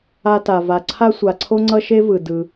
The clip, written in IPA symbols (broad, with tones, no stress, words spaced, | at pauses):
a˧ta˩ va˩ǀʰa˥sʷa˩ǀʰo˥ ŋ͡ǀʌ˥ʃe˥vɯ˩ dɯ˩